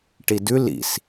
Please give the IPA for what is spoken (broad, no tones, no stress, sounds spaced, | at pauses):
ʈ i d ʉ l ḭ s